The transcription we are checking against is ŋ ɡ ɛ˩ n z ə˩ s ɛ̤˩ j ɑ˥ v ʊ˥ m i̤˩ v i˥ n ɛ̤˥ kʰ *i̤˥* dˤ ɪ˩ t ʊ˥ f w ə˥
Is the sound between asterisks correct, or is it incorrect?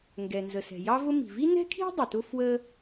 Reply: correct